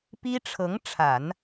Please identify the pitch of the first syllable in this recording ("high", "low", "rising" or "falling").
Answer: high